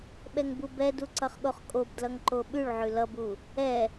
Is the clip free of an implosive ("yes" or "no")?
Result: no